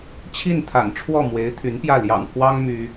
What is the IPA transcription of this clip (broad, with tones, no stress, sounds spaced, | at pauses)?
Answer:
t͡ɕʰ i˥˩ n t̪ʰ a̰˨˩ n ʈ͡ʂʰ w ɔ˥˩ m w e˧˥ ɪ̯ t̪ʰ y˧˥ n p j ä˥˩ l j ɑ̰˨˩ ŋ pʰ w ɑ˥ ŋ m y˥